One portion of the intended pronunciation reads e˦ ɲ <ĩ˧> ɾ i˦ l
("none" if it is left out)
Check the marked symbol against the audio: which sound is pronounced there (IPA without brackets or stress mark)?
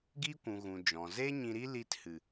ĩ˧